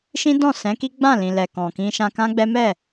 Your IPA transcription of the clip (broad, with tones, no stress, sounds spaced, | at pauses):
ʃ ĩ˦ d ɔ̃˦˨ s ɛ̃˨˦ k i˦ ɡ͡b ã˦˨ l ĩ˨ l ɛ˨ k ɔ̃˨ k ĩ˧ ʃ ã˧ k ã˦ ɡ͡b ɛ˦ m ɛ˦˨